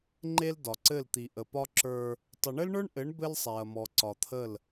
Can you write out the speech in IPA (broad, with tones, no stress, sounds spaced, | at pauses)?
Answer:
ŋ͡ǃ e˦ l d ɒ˨ ǀ ɘ˦˨ l t̪ i˨ ʔ ə˨ p ɒ˦ ǁ ə˞˦ | tˤ ə˨ ɳ ɘ˦ l ɳ ə˞˦ ɳ ʔ ɘ˨˦ ɳ b ɘ˦ l sˤ ɛ˨ ɐ̯ m ɔ˨ ǀ ɒ˨ t̪ʰ ə˦˨ l